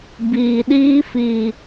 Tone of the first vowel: low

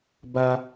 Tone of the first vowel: high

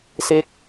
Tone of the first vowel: falling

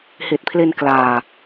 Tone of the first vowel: low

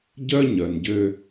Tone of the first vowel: high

